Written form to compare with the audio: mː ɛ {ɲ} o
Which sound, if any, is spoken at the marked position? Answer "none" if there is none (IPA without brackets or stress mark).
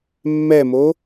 m